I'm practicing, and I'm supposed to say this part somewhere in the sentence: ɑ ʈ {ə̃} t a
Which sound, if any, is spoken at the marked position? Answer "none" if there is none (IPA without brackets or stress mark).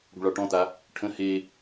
ɔ̃